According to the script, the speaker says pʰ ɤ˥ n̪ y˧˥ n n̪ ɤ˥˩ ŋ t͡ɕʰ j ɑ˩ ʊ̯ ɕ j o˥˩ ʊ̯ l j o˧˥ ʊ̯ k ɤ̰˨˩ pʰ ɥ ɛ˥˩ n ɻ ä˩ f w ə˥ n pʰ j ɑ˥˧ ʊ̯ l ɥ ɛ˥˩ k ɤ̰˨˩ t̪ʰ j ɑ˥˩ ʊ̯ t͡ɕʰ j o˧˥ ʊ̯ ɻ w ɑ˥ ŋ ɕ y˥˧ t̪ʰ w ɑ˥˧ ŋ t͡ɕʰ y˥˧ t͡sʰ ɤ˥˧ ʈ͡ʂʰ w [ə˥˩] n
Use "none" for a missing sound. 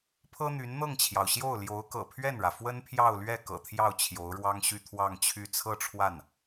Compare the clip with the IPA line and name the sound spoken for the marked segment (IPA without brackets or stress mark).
a˥˩